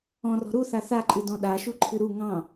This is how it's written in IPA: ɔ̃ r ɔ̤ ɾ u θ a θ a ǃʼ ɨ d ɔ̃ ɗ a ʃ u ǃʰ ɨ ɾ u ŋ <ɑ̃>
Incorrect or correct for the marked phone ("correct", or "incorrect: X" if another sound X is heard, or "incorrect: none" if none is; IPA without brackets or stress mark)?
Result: correct